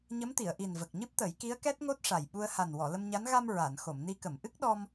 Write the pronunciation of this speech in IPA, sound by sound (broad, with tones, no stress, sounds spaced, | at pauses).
ɲ ə˧˥ m t̪ i˨˩˨ ə̯ ʔ i˨˩ n v ə˨˩ k̚ ɲ ɨ˦˥ p̚ t̪ ə˨˩˦ j k i˧˥ ə̯ k ɛ˦˥ t̚ ŋ o˦˥ t̚ ʂ a˨˩ j ɓ u˧ ə̯ h a˨˩ n w ɔ˨˩˨ l ə˧ m ɲ a˧˥ n ɣ a˧ m ɹ a˨˩˨ n x o˨˩˨ m n i˧ k ə˨˩˨ m ʔ ɨ˦˥ k̚ ɗ ɔ˧ m